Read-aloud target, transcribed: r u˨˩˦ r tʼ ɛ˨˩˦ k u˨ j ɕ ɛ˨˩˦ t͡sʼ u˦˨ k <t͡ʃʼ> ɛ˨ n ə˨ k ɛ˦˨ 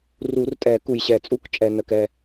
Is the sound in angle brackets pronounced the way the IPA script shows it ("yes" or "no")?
yes